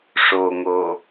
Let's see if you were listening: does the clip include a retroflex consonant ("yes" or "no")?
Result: yes